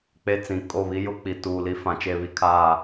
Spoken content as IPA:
k͡p e˨ t͡s ĩ˨ kʼ o˦˨ β i˦ j ʊ˦ k͡p i˨ t uː˨ l i˦ f ã˨ t͡ʃ e˦˨ β i˦ kʰ aː˦˨

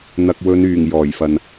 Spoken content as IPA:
n̪ ɐ˨ k̚ w ɵ˨˧ n yː˨˩ ŋ j ɔː˨˩ j f ɐ˨ n

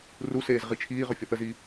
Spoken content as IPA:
r u s eː z ʁ i t͡ʃʰ iː ʁ ʏ fʲ ə θ ə z i

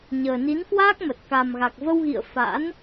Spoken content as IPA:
ɲ əː˨˩ n i˨˦ n k w aː˦˥ k̚ m ə˨˩ t̚ k a˨˩ m ɣ a˨˩ k̚ v ə˧ w ɣ ḭ˧˨ ə̯ f a̰˧˥ n

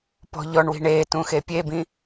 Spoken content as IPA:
p ɔ̤ ʎ ɔ ɳ w i̤ ɳ e t ũ x e pʲ e b ĩ

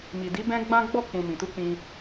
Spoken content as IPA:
m i˨ d i˨˦ b ɛ̃˦ ɡ͡b ã˦ ɡ͡b ɔ˦˨ k͡p ũ˨ m ĩ˨ t u˧ k͡p ĩ˧

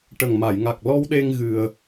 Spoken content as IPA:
ʈ ə˨˩ ŋ m a˨˩˨ j ŋ a˨˩ k̚ l ɔ˧ w ɗ e˧ ŋ ɣ ɨ˧ ə̯

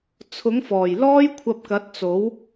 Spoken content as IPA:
t͡sʰ ʊ˨˥ ŋ f ɔː˨˩ j l ɔː˥ j kʷʰ ɐ˧ p̚ k ɐ˨˥ t̚ t͡s o˨˥ w

